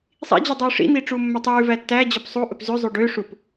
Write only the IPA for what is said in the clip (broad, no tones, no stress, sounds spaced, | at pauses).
sˤ ḭ d͡ʑ ʉ dˤ uː ʂ ḭ n̪ iː ʈ͡ʂ uː mː œ tˤ ʉː v æ tː æ d͡ʑ œ p sˤ u ʔ ɵ p z ʉ zˤ ʉ ɖ ø ʂ u p